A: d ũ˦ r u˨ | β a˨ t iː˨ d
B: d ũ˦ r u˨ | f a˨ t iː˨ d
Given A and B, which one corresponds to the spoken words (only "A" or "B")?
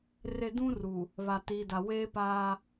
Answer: A